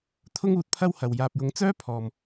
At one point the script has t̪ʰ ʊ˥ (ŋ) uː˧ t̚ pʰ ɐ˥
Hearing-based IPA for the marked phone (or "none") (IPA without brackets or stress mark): ŋ